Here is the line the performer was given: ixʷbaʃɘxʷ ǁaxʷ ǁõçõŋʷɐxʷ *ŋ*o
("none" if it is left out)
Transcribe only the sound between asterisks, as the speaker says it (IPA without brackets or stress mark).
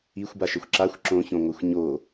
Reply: ɲ